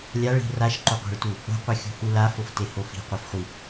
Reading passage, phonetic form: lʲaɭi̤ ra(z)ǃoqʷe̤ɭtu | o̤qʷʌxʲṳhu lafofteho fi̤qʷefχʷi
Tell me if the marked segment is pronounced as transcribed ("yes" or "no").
no